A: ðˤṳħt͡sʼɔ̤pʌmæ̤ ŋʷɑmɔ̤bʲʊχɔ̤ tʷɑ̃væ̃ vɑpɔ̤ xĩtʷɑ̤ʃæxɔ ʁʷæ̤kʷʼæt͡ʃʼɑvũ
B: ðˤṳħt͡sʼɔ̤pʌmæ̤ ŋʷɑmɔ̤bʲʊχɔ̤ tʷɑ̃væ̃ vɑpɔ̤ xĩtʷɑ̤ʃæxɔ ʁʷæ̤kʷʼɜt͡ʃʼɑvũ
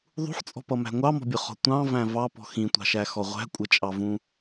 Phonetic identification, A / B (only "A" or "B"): B